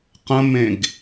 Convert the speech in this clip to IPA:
qə̃mẽɡ

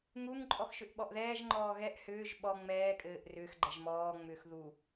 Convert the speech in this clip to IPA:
ŋuŋǃʼɔx ʃʏʔɓɔʔðɛːʒŋ͡ǃɔː ɣɛʔ hʏːʒ ɓɔ ŋ͡mɛːkʼɘːʔ rʏːx ɡ͡ǃɛʒmɔːŋ͡mʏːx ðu

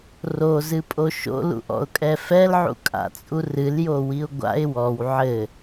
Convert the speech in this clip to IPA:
rozɨpʼo ʃo̰lṵʔɔ̰ʊ̯kʼɛ fɛlʕṵkʼa̰t͡sʼu rɨljowiʊ̯ ɡʷa̰ɪ̯ wɔw ʕɘ

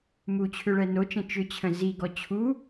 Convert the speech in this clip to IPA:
mut͡ɕʰʏɭɛ not͡ʃə̃ t͡ʃʏt͡ɕʰə̃ ziɡɔ t͡ɕʰu

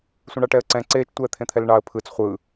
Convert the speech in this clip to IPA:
sʷẽɳɑʈɛə̯ǀɛ̃ ǀeːt͡ʃtʷɛː t̪ʰẽt̪ʰɛlɳɑə̯ pʰɯt͡s χʷɯ

